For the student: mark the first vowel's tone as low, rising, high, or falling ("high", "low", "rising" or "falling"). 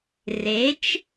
rising